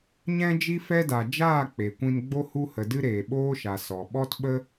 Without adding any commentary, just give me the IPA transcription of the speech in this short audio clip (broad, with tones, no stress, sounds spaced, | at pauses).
ɲ ɛ̃˦ d͡ʒ i˦ f ɛ˦ d a˨ d͡ʒ aː˦˨ k͡p e˨ kʷ ĩ˧ n ɡ͡b o˦ h u˦ h ə˨ d ɨ˦ ɾ eː˨ ɓ oː˦ ʃ a˨ s ɔ˨ ɓ ɔ˦ t ɓ ə˦